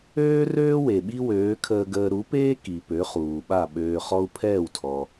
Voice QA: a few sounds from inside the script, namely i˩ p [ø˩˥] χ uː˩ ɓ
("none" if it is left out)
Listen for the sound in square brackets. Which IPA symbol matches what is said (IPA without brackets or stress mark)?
ø˩˥